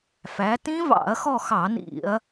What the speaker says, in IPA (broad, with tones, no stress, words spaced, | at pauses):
fæ˩˧tĩ˦˥vɑ̰˧˩˧ɐ̯xɔ˦˨ xɑ˧˩˧nḭ˧˩˧ɐ̯